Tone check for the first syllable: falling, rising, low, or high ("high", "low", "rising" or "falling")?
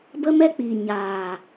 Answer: high